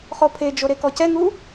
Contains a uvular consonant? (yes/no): yes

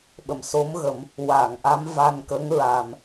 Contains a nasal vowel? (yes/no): no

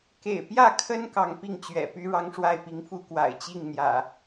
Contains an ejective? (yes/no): no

